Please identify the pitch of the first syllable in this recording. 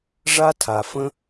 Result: high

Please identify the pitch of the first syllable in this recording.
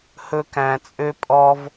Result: high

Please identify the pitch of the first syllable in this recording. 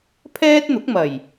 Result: high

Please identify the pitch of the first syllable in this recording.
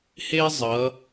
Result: high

